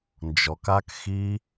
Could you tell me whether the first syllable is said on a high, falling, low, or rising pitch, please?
low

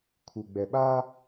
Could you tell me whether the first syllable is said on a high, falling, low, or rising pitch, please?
low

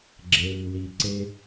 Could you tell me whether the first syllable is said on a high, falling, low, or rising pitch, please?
low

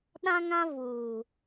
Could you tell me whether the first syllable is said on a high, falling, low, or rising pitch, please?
high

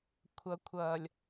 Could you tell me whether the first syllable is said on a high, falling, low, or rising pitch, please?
low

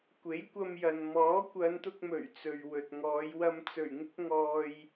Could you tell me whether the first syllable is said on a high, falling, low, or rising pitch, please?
rising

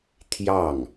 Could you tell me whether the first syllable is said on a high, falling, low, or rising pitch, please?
falling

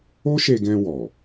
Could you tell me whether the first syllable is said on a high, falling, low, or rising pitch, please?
high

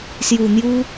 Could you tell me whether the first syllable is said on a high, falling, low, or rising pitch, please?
low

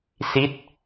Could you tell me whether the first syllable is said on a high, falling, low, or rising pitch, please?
falling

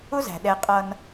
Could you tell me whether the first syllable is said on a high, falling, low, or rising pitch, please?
high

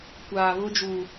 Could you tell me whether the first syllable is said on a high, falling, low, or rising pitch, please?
low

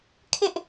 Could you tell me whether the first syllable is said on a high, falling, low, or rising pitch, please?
high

